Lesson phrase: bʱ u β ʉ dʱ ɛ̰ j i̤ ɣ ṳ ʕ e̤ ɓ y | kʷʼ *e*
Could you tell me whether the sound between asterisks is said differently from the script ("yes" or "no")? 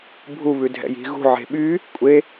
no